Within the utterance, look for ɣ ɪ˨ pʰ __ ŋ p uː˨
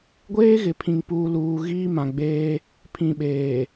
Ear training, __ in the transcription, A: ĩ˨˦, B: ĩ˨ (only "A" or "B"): B